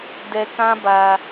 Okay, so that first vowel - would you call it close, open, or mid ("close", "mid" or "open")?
mid